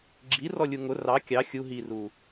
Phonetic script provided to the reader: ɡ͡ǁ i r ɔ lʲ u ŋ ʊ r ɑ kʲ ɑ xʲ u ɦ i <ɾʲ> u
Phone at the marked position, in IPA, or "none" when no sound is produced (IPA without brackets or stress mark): r